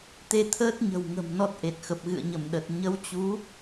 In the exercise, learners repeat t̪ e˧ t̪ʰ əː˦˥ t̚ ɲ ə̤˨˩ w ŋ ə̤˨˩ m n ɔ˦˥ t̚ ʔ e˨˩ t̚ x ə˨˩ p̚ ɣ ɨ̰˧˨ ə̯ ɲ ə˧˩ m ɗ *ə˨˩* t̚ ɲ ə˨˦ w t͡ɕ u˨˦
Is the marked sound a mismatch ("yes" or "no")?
no